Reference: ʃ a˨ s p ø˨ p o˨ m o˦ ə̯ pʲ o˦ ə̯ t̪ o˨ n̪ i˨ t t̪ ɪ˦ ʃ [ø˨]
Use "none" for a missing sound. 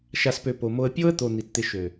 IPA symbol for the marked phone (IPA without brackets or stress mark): ø˨